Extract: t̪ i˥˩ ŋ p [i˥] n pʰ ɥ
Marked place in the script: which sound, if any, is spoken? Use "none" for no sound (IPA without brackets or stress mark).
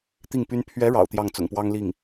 y˥